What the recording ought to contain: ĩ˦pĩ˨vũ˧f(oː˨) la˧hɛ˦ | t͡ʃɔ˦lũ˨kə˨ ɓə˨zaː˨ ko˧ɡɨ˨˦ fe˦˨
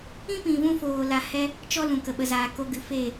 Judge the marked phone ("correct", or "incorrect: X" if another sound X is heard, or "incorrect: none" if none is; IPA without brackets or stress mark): correct